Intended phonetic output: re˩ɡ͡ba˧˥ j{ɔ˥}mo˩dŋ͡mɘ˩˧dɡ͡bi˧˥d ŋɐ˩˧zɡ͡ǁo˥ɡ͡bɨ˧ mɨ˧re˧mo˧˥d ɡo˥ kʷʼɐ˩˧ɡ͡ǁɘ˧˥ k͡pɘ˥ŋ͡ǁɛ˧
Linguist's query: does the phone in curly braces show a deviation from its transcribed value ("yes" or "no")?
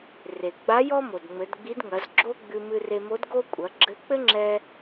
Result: no